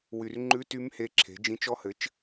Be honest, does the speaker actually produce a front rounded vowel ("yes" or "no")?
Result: yes